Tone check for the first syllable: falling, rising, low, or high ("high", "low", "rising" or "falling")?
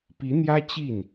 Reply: rising